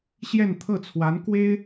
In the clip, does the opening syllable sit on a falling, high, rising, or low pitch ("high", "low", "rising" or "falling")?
falling